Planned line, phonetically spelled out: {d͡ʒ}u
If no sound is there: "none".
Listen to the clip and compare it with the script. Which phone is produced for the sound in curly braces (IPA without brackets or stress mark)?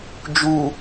d͡ʒ